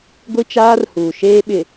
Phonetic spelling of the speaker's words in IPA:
ɡʷ i˦ t͡ʃ aː˦ r h uː˨ ʃ eː˦ ɓ ɪ˨

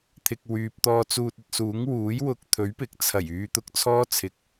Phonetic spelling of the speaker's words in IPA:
t̪ʰ ɪ˨ k̚ w yː˨ p̚ t̪ ɔː˧ t͡s uː˧ t̚ ɵ˧ t̚ s uː˨˥ ŋ w uː˨˥ j w ʊ˧ k̚ t̪ʰ ɵ˨˥ ɥ p ɪ˨ k̚ t͡sʰ ɐ˨˩ j yː˨˧ t̪ ʊ˧ k̚ t͡sʰ ɔː˥ t͡sʰ ɪ˨ k̚

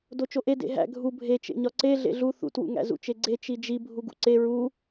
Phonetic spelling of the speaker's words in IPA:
d o t͡ʃ o ʔ e d ḛ ɦ æ̰ ɡʱ u bʱ e t͡ʃ ḛ ɲ ɒ ǀ e ɮ ḛ ɮ u θ ṵ t w ṵ ŋ æ̰ z ṵ t͡ʃ e ɡ͡ǀ e t͡ʃ i d͡ʒ i bʱ u ɡ ṵ ǀ e ɹ u

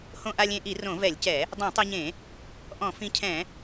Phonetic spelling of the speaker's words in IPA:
h õ˧ ʔ a˧ lʲ ẽ˧ ʔ i˧˩˧ r õ˧˩˧ v ɛ˧˩˧ lʲ c ɛ˧˩˧ | dˤ ɛ̃˧˩˧ tˤ e˧ ɲ ẽ˧˩˧ | ʔ ɔ̃˧˩˧ f ĩ˧ cʰ ɛ̃˧˩˧

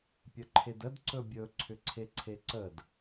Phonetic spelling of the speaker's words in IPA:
pʲ ə ǃʰ e d ə d ǀ ɵ bʲ ɵ ǀʰ ʏ ǀʰ e ǀʰ e ǀ ə d

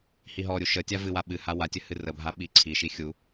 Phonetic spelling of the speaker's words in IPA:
h i ɦ ɔ ɾʲ u ʃ ə tʲ a v ɨ w a ɓ ɨ h a w a tʲ ə h ɨ r ə bʱ a ɓ i ǀʰ i ʃ i xʲ u

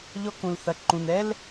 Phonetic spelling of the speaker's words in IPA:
ʎ ɔ˧ k ũ˩ l θ ɐ˩ ǃ ũ˩ n ɛ˥ l

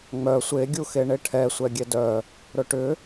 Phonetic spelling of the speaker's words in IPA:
ŋ͡m œ sʷ e ɡʲ u x e ɳ e ʈʰ ɛ sʷ ɛ ɡʲ ɛ d œ | ɾ ɵ ʈ ʏ

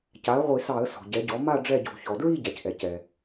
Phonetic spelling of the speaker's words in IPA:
c a˩˥ ə̯ ʁʷ i˧˩˧ s ɑ˧˩˧ ə̯ s ɔ̤˩ ɟ ɛ˩˥ ɟ ɔ˩˥ m a˥˧ ɖ͡ʐ ɛ˥˧ ɟ o̤˧˩˧ ç ɔ˩ d ɹ i˥˧ ɟ a˩ c ʔ ɛ˩ c ɛ˩

